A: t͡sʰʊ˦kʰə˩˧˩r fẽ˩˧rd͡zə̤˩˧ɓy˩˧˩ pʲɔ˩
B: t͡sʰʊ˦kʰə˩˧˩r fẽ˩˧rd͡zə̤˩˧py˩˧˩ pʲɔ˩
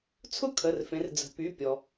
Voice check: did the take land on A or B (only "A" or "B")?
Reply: B